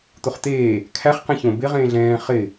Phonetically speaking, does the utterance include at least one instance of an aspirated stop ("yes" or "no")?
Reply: yes